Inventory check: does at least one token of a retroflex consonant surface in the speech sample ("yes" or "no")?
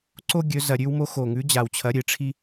yes